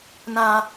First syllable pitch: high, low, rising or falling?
high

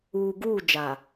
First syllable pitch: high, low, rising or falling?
low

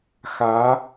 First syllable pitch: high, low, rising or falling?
rising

